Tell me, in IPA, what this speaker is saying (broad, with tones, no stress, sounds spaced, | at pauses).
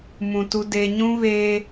m ũ˨ t u˦ d e˦ ɲ ũ˦ β eː˦